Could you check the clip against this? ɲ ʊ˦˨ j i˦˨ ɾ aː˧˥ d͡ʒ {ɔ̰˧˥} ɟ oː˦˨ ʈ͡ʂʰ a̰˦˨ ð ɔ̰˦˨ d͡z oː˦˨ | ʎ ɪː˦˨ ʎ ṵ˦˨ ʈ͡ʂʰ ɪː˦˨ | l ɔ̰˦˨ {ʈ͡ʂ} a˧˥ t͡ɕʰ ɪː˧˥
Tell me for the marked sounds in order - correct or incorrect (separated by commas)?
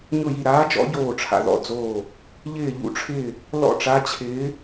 correct, correct